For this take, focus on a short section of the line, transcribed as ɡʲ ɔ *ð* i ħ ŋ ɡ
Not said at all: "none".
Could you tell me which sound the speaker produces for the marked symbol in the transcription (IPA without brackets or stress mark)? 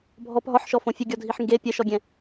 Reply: dʱ